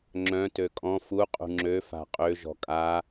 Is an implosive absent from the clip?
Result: yes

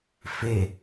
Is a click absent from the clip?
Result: yes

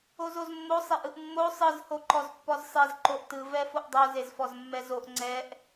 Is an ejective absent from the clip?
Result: yes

